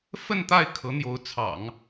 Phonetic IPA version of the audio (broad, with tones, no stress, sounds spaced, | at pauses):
f ə˥˧ n t̪ a˥˩ ɪ̯ kʰ ɤ˧˥ n̪ j o˧˥ ʊ̯ t͡sʰ ɑ̰˨˩˦ ŋ